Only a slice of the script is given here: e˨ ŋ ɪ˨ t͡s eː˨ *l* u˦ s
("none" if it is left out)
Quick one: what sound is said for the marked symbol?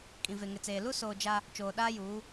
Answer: l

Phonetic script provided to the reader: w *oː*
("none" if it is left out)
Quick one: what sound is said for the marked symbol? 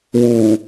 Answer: uː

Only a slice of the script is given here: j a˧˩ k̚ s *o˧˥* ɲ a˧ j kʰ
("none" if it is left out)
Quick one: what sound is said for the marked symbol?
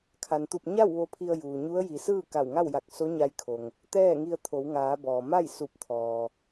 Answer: o˧˥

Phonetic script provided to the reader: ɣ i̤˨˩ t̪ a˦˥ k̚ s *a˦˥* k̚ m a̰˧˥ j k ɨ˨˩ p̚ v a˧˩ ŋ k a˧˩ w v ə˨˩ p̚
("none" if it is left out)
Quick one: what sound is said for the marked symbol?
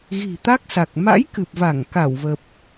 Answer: a˨˩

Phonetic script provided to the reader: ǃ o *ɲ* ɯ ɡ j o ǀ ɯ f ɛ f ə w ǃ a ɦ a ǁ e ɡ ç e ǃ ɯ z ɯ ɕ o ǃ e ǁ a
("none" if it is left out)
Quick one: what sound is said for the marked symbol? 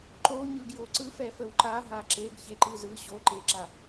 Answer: ɲ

